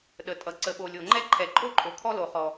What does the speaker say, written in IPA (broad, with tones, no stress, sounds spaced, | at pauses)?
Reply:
ɗ ə˩ tʼ ʌ˩ ǀ ə˩ ɓ o˩ lʲ o˩ ŋ͡ǃ ɛ˥ ǃʰ ɛ˩ ǃʼ o˥ ǃʼ o˩ kʰ ɔ˥ l o˩ χ ɔ˩